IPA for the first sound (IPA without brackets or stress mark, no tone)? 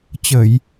t͡ɕ